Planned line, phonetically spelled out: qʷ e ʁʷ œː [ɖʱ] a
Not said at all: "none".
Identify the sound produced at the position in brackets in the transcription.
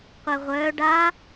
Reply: ɖ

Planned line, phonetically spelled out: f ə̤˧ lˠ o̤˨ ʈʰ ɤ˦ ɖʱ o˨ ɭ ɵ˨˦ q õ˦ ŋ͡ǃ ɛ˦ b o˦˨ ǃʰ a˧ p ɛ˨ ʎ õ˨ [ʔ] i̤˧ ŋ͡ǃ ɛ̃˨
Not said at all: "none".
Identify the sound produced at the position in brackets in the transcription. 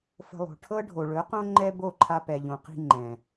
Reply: q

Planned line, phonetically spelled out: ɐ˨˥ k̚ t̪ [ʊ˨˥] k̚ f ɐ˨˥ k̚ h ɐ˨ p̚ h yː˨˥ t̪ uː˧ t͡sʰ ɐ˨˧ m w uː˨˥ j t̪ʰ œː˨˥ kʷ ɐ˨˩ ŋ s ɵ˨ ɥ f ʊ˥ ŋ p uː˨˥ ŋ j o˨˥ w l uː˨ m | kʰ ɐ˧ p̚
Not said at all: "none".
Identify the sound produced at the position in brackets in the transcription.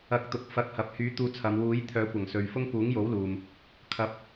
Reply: ʊ˨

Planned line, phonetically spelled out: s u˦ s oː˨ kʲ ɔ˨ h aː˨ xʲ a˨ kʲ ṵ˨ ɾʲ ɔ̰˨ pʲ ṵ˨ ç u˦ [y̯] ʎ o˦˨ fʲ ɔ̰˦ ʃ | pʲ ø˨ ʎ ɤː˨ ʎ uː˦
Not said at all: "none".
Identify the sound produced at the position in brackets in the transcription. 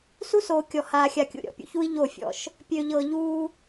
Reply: i̯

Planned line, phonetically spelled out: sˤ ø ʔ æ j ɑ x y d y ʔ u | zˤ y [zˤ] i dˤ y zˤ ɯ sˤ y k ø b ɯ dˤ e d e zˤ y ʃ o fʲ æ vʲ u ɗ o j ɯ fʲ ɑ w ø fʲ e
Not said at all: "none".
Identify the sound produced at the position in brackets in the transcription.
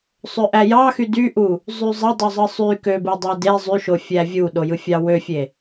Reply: zˤ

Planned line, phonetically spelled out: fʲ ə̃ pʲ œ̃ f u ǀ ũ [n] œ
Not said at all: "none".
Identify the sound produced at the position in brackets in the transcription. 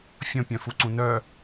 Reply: n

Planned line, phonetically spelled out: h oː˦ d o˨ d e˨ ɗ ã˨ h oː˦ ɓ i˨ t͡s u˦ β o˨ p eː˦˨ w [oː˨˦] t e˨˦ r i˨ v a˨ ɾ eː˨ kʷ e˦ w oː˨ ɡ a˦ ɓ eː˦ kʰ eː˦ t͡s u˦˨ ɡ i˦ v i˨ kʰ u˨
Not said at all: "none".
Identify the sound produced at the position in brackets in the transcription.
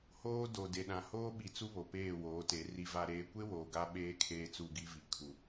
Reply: oː˨˦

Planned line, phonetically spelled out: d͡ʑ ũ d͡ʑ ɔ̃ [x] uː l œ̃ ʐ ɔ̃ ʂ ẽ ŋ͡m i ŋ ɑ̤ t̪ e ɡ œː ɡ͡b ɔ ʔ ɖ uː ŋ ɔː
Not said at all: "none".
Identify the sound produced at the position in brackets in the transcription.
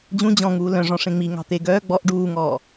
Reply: ŋ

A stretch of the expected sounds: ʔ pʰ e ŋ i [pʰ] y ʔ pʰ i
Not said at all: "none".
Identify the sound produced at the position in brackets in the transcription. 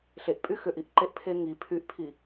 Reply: pʰ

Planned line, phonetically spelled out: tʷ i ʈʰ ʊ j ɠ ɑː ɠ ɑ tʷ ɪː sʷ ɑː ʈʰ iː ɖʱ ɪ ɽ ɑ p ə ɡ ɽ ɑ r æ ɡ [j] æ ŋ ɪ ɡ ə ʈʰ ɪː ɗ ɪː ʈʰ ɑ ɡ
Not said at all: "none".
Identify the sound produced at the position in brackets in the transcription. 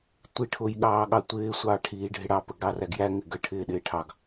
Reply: j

